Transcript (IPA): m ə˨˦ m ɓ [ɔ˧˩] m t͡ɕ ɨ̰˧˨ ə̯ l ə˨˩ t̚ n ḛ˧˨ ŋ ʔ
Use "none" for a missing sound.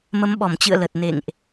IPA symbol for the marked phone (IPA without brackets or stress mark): ɔ˧˩